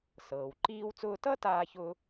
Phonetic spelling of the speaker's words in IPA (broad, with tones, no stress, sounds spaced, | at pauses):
s ɤː˩ w ǃ iː˧ w t͡s ʊː˧ t ʌ˥ t aː˥ ç ʊː˥